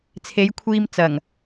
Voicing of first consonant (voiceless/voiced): voiceless